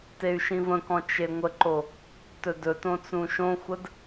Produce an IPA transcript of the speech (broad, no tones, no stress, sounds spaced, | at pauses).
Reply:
t e y̯ ʃ ĩ v ə̃ k ɔ̃ t͡ʃ e ŋʷ ə ǃ o | t ɵ d ɵ t õ t͡s ũ ʃ õ xʷ ə d